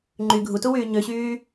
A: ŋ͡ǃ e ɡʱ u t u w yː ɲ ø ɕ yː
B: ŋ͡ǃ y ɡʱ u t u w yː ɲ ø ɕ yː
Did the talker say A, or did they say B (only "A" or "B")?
B